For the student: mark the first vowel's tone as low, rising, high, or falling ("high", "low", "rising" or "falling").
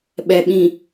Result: low